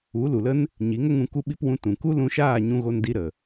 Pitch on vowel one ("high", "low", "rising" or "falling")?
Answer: rising